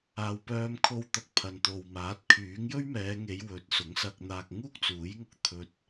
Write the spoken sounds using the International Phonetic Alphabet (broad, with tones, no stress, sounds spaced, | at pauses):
aː˨ w p œː˧ m kʰ o˧ w t̪ ɐ˨ k̚ pʰ ɐ˨ n t̪ o˨ w m aː˨˥ t̚ kʰ yː˨˥ ŋ j ɵ˥ ɥ m ɛː˨˧ ŋ e˨˧ j w ɵ˨˥ t̚ s ʊ˨˥ ŋ s ɐ˧ k̚ n̪ aː˧ k̚ ŋ uː˥ k̚ t͡s uː˨˥ j ŋ ʊ˧ k̚ t̪ʰ ɵ˧ t̚